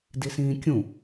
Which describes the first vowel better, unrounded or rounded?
unrounded